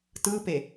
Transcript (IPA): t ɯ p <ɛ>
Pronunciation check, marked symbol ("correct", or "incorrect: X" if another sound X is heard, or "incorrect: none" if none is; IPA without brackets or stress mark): incorrect: e